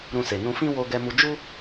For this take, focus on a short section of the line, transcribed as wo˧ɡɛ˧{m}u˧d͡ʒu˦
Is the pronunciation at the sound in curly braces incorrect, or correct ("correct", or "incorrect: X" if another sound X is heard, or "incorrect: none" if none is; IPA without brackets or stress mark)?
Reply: correct